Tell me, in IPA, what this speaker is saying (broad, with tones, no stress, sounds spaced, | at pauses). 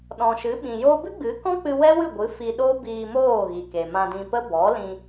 ɗ ɔ̃˨ ʃ ɨ˨˦ ɓ ĩ˨ j o˦ b ɨ˦ ɡ͡b ɨ˨˦ k ɔ̃˦ k͡p ɨ˧ w ɛ˦ w ɨ˦˨ ɡʷ ɨ˨˦ f i˧ ɗ o˦ b iː˧ m oː˦˨ ɣ i˨ k e˨ m ã˧ d ĩ˧ p ə˦ b ɔ˨˦ l ĩ˧